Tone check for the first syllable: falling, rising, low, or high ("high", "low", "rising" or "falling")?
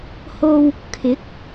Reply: low